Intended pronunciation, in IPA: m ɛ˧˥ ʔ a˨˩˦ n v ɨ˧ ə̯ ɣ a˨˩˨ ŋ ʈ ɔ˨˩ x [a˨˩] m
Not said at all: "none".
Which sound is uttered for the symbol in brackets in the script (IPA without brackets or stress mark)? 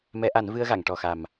a˨˩